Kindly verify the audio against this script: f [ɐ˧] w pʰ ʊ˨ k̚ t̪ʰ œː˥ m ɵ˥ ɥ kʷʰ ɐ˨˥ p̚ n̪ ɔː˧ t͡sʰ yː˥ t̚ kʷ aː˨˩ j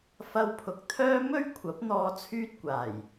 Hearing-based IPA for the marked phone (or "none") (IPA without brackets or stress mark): ɐ˧